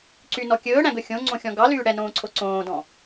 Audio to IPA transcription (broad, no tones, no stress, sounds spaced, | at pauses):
ǀ y n ɔ kʲ ɵː ɽ æ̃ ɡ ɵ xʲ õ ŋ͡ǀ õ xʲ ɔ̃ ɡ ɑ l yː ɽ ɛ n õː ǀʰ o ǀ õː d ɔ̃